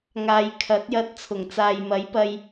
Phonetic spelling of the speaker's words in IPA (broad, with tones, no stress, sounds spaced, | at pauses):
ŋ aː˨˧ j kʰ ɐ˨˥ t̚ j ɐ˧ t̚ t͡sʰ ʊ˨˩ ŋ t͡s aː˨ j m ɐ˨˥ j p ɐ˧ j